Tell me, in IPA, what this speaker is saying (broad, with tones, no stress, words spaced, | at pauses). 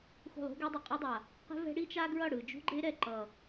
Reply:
xṳ˦˨lˠṳ˦ɡe˦dˤɛ˨ qʼe˦dˤa˨ | qɛ̤˦ vɛ̤˦ ɽi˦t͡ʃa˦ ɡɹʌ˦˨ɽɯ˨d͡ʒṳ˦ɡ͡ǃe˦ ɾɛ˨ǃʌ˨